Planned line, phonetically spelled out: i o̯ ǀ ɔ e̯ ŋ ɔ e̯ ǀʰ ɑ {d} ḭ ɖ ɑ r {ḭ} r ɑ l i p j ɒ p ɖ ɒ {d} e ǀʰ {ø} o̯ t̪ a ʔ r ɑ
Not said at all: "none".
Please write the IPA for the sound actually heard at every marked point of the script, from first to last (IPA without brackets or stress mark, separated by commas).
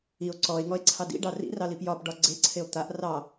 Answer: d, ḭ, ɡ͡ǀ, e